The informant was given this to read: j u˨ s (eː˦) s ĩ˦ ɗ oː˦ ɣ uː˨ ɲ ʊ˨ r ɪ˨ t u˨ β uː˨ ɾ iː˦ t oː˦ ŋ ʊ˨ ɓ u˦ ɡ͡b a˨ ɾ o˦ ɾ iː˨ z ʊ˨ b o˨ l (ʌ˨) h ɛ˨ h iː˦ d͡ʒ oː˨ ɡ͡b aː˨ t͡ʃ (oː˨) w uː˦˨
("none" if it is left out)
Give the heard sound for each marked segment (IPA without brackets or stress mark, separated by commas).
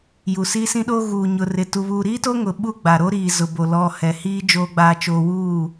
iː˦, ɔ˨, oː˨